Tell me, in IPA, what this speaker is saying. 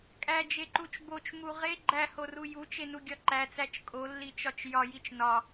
kʼ æ d͡ʒ e ǃ u t͡ʃ b o t͡ʃ m u ʁ e ɡ͡ǃ æ h o r u j u t͡ʃ e n u ɡʲ ɒ ǃ æ t͡s æ t͡ʃ kʼ o lː i t͡ʃ ɒ t͡ʃ j ɒ j i t͡ʃ n ɒ

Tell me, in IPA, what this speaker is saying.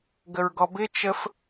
ɡ ə ɹ ɡ ɔ b ɪ t͡ʃ ə f

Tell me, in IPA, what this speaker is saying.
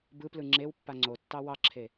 b ɯ p l ɯ ŋ͡ǁ e w pː a ŋ͡ǀ o tː ɑ w ɑ ǁʰ e

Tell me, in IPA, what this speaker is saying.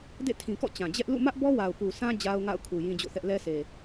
d ḛ˦˨ tʰ ĩ˨ k ɔ̰˦˨ t͡ɕ ã˨ d͡ʑ ɛ˦ ʔ l ṵ˦˨ m ä˦ ʔ b ɔ˦ w a˨ ʊ̯ p u˨ sʰ ã˦ d͡ʑ a˦ ʊ̯ ŋ a̰˦˨ ʊ̯ kʰ u˨ j ĩ˦ d͡ʑ o̰˦˨ θ ɛ˦ ʔ l ɛ˦ s e˨

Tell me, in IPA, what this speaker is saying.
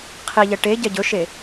qʰ i ʎ ɛ ʈ e ɟ ɛ ɟ ɵ ʃ e

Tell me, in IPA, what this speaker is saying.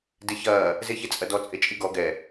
d e ç ɐː | z e ç e t͡sʼ ɐ d ɔ t͡sʼ e t͡ʃʼ i ɡ ɔ ɡ ɛ

